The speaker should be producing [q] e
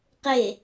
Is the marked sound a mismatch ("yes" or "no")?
no